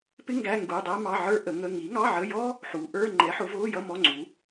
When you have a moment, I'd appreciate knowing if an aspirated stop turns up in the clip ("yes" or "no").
no